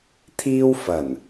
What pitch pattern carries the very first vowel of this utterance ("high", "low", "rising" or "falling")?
high